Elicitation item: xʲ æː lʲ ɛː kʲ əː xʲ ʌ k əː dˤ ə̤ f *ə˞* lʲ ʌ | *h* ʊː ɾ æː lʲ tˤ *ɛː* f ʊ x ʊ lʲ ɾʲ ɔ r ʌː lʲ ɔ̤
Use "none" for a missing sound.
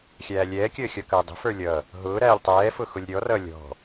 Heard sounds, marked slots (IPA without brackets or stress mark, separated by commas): ə˞, ɦ, ɛː